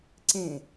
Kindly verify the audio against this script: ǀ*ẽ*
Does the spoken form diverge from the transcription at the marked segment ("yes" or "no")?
no